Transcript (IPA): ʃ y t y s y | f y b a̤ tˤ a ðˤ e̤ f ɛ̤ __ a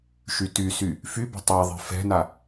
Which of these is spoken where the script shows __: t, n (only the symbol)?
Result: n